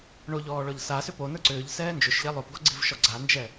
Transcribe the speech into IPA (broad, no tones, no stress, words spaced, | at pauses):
ɳoʎɔː ɭɔʎsasʏ ponə˞ ǀʏːʎ sɛːnd͡ʒʏʃʎɛ lˠopɡɔɡ͡ǀivʃɔ ɡ͡ǀand͡ʒɛ